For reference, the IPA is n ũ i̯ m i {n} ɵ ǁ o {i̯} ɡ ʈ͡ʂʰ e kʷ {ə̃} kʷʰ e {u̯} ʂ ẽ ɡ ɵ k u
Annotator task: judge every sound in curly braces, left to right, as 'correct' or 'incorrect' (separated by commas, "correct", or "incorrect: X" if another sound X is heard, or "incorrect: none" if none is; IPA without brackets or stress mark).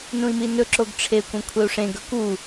correct, incorrect: none, incorrect: ɐ̃, correct